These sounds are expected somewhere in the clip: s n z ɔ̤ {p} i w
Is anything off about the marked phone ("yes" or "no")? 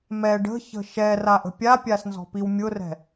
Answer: no